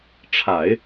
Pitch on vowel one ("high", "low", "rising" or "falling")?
low